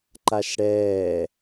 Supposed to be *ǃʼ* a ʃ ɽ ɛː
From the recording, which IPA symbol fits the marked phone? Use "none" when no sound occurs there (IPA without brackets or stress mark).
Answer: ǃ